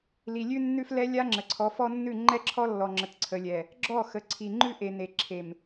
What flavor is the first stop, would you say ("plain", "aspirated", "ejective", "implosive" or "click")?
click